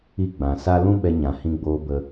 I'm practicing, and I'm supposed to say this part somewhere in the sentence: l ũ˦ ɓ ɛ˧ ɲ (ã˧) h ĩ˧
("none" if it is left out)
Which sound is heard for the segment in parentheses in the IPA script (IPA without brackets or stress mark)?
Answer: ã˨